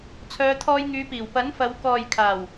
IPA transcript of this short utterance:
t͡sʰœː˨˧t̪ʰɔː˧jŋyː˨˧piː˨˩w pɐ˨˥nfɐ˨˧w kɔː˨jkʰaː˨˩w

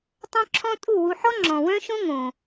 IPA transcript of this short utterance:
tˤœ̃˦ǁʰɔ̃˦tʼu˦˨wu˧ ħɔ˦ŋ͡ǁɔ̃˨wœ̃˦ʃõ˦ ŋõ˨

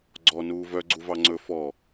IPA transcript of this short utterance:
ɡ͡ǀɔ nuːvœ ɡ͡ǀuvɑŋ͡ǀɵ fɔ

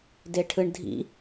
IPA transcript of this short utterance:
deʈʰɯɳdʱḭ

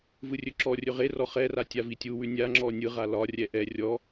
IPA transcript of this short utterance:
vɯrʲɵǁɔrʲɵ ʁerɔ χɛra tʲavitʲuwʉ nʲaŋ͡ǁɔ nʲɯʁa lɒrʲɛ ʔɛ rʲɔ

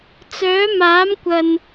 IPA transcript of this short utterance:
t͡sœː˨˥maː˨˥mkʷɐ˨n

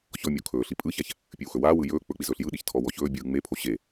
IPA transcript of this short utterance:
çɔmʲo kʰɵːɬi pʼɯçaç | pʲɨwxɵwaːwɯ jɵː k͡pɵk͡piz ɵːɬjɯɗiç tʰɔwɔçɵːbʲɯː ŋ͡mepʰo ɕe

